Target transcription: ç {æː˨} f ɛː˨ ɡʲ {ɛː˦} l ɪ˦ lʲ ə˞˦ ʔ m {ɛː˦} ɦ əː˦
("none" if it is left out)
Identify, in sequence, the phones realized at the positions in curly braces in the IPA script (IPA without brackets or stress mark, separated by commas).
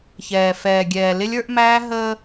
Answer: ɛː˨, ɛː˨, æː˦